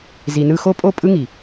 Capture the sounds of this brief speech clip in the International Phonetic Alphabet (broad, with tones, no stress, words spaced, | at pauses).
zi˨nɯ˧xo˦ pʼo˦˨ pʼɯ˦ŋi˨